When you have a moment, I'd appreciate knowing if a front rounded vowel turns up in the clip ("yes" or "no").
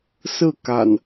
no